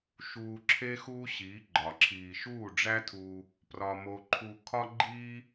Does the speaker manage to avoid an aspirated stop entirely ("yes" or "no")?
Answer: no